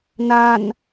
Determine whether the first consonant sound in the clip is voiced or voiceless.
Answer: voiced